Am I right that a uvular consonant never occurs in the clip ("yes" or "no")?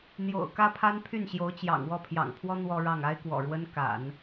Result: yes